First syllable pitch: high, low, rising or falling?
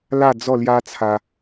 falling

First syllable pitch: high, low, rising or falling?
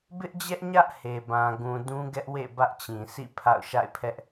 high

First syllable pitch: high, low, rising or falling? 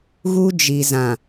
high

